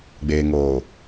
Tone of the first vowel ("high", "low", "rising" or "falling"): low